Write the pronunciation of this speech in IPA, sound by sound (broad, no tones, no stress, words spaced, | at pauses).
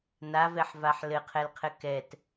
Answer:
navɛħvaħ lɘqʰɛlqʰɘ kɛt